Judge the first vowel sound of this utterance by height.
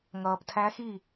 mid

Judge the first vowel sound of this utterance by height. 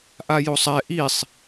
low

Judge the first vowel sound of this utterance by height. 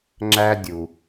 low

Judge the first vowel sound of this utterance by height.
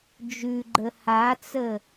high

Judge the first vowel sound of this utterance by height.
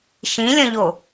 high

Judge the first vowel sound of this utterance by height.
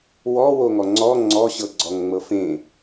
mid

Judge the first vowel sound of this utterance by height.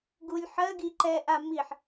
high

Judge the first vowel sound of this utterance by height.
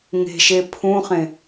mid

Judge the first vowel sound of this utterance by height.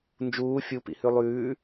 high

